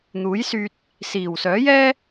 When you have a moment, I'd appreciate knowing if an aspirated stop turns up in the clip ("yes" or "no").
no